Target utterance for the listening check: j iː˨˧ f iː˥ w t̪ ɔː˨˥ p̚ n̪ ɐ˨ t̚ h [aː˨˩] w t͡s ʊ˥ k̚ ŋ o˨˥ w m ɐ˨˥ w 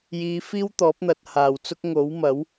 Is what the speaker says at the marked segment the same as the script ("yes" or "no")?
yes